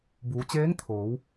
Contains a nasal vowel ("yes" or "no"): no